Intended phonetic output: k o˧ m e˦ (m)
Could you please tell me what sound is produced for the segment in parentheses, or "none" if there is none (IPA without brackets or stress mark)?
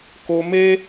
none